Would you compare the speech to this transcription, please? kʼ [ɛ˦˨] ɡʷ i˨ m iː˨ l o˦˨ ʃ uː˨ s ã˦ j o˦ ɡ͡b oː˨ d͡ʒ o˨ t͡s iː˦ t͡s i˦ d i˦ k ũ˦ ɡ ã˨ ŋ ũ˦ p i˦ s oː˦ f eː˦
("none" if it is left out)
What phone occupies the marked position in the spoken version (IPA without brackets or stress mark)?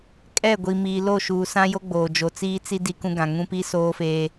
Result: ɛ˦˨